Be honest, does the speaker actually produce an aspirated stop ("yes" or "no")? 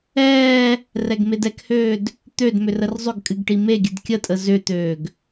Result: no